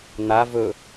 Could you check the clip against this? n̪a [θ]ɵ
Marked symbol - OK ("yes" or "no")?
no